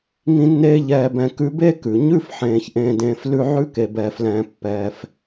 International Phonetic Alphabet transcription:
ŋ ĩ˦ nː eː˦ ʎ ɛː˨ b ɛ̃˨ k ʉ˦ b e˥ k ʉ˩ ɲ ʉ˦ f ħ ẽː˩ ç ʔ ẽː˨ d ẽː˨ f l ʉ˦ ʕ ʉ˦ k e˩ b ɛː˩ f l ɛ̃ː˩ pː ɛː˩ f

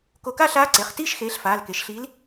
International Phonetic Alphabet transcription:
k o˧˩ k a˥˧ ɬ aː˧˥ ǀ e˩˧˩ χ t iː˥˧ ʃ x eː˩˥ ɬ f aː˩˧˩ l k e˩˥ ʃ ɬ iː˧˥ l

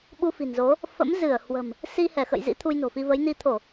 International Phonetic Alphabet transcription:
ɓ u˧ f i̤˨˩ n z o˨˦ | f ə̰˧˥ m z ɨ˧˩ ə̯ h w ə̤˨˩ m | s i˧ h ɛ˧˩ x ə̰˧˨ j z ḭ˧˥ t̪ʰ u˧ j n o̤˨˩ f i˧ v ə˨˦ j n i˧ t̪ʰ o˧˩˨

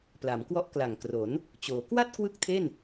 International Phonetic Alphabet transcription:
p l a˩˦ m k w ɔ˦˥ ʔ k l a˨˩ ŋ k r o˩˦ n | t͡ɕ oː˩˦ k w a˥˩ t̚ k w ɯ˥˩ k̚ tʰ e˥˩ n

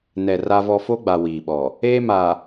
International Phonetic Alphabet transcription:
n ɛ˨ r a˦ v ɔ˦ f o˦ ɡ͡b a˨ w iː˨ ɓ ɔ˨ | eː˦ m aː˨

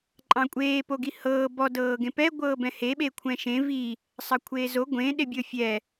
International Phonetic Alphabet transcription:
ǃʼ ɑ̃ kʷʼ eː p o ɡ i h ɤː b ɔ d ɤː ɡ ẽ p ɛ ɡʷ ɤː b ɛ̃ h e ɓ e kʷʰ ɛ̃ ʃ ẽ v i | sˤ ɑ kʷʰ eː z o ɡʷ ẽ ɗ e bʲ ɤ fʲ ɛ

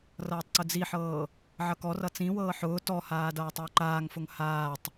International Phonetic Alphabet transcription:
r ʌː tˤ ǀ ʊ d͡z i ħ ɤː | ʕ ʌ k ɔ r ʌ t͡s ĩ w ɤː ħ ʊː t ɔ h aː d ʌː tˤ ʊː ǃ aː ŋ f ʊ ŋ h aː tˤ

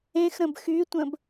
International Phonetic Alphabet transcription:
ẽ x ɾ ə̃ b x y tʷ ə̃ b

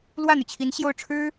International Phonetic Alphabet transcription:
l w ä˥˩ n̪ y˩ t͡ɕʰ i˧˥ n ɕ j o˥˩ ʊ̯ ʈ͡ʂʰ ɻ̩˥

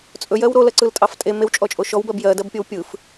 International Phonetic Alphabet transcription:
t͡sʼ ɵ j ɜ w ɾ o l ɜ ǀ ɯ l tʼ ɑ f tʼ e m e w t͡ʃʼ ɔ t͡ʃʼ o ʃ ɔ w b ɜ b j ɜ d ɜ b pʲ o w pʲ ɯ f

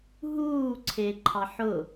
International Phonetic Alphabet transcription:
ɦ uː ǀʰ e ǃʰ ɑ ħ ʊ

